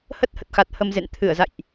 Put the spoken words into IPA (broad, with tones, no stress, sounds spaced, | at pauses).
h ə˦˥ t̚ h ə˨˩ t̚ x a˨˩ t̚ h ə˧ m z ḛ˧˨ n t̪ʰ ɨ˧˩ ə̯ z a̰˧˨ j ʔ